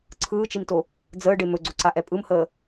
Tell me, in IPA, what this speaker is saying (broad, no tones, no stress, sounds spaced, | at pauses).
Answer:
ǀʰ ɯː t͡ʃ i m t o | d͡z əː ɖ e m ɵ ɡ͡ǀ o ǀ a ʔ ɛ pʼ ɯ m h əː